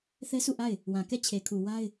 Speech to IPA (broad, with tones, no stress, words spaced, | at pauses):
θɛ˦sʰu˦˨ʔa˦˨ɪ̯ | wã˨kɛ˦˨t͡ɕʰe˨kʰu˨ wa˦ɪ̯